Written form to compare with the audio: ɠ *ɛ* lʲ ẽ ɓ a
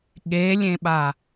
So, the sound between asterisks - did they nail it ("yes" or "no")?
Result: no